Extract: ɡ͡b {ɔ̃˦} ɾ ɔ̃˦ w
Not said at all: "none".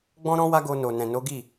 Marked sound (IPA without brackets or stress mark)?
ɔ̃˦